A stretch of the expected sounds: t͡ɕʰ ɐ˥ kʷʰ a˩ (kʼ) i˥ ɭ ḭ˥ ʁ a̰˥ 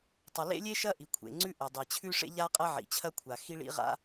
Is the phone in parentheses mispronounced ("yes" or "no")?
yes